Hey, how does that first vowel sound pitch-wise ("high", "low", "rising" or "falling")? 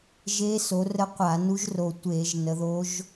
rising